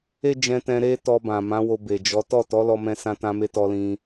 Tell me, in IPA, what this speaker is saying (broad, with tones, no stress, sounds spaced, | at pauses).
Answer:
e˦ d͡ʒ ɛ̃˧ t ɛ̃˧ ɾ e˦ t ɔ˧ b ã˨ m ã˨˦ w o˧ b e˨ d͡ʒ ɔ˨˦ t ɔ˦˨ t ɔ˨˦ l ɔ˧ m ɛ̃˧ s ã˧ t ã˧ m e˧ t ɔ˧ l ĩ˧